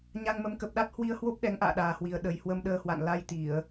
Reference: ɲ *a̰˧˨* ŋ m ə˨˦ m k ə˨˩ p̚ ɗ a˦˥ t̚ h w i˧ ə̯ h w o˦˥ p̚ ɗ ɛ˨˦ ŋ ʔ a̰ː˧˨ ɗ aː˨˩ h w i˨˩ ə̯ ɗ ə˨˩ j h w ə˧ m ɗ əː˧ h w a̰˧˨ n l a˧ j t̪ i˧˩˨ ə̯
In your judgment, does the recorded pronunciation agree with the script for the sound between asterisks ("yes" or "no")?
no